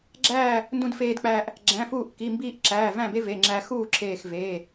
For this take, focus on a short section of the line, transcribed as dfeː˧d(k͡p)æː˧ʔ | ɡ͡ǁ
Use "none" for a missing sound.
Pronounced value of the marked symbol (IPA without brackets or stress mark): k͡p